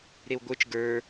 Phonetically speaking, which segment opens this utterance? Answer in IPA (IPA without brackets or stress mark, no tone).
ɾ